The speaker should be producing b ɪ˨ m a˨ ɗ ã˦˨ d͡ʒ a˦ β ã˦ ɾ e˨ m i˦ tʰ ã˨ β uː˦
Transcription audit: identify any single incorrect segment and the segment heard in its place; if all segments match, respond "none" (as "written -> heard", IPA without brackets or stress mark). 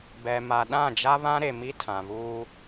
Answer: ɪ˨ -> ɛ˨